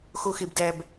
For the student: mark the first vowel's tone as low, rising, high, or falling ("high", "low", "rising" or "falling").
low